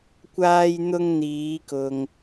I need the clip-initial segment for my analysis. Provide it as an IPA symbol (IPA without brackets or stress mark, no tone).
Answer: kʷ